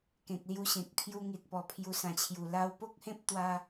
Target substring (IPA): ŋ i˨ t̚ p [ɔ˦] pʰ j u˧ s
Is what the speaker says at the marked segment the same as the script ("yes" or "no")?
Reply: no